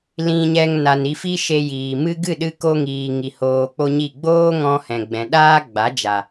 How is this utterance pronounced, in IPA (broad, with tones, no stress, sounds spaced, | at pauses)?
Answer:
l ĩ˨ ɲ ɛ˨ ŋ n a˨ n i˧ f i˦ ʃ e˧ j iː˨ m ɨ˦ ɡ ɨ˦˨ ɗ ɨ˧ k o˧ ŋ iː˨ ŋ i˨ h oː˧ k͡p o˦ ɲ i˦˨ ɡ͡b oː˦ ŋ ɔ̃˧ h ɛ̃˨ ɡ͡b ɛ̃˨ ɗ aː˦ ɡ͡b a˨˦ d͡ʒ a˨